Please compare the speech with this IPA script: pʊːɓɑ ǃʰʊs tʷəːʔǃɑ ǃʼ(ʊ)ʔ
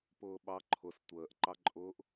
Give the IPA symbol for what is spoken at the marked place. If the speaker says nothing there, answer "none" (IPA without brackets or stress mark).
ʊː